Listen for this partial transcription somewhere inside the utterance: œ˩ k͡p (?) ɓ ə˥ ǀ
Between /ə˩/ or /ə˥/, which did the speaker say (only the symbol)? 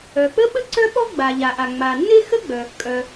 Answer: ə˥